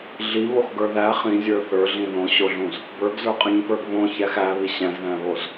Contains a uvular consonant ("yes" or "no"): yes